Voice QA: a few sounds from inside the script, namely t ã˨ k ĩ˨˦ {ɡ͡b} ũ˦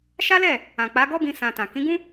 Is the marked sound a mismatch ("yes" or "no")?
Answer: yes